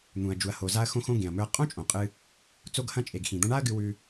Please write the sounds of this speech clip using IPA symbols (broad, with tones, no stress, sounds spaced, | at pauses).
n̪ ũ˩ ɐ̯ d͡ʒ u˩ ɐ̯ h o˩ z a˧ ɐ̯ x õ˧ x õ˧ ɡ ẽ˩ ɐ̯ m ɵ˧ ɐ̯ qʼ õ˥ t͡ʃʼ õ˩ qʼ ɨ˧ | t͡s o˧ ɡ h ɐ̃˧ t͡ʃʼ e˩ ɡ x ĩ˩ d̪ ɐ̃˧ ɳ a˥ ɐ̯ ɡ ɨ˧ w ʉ˧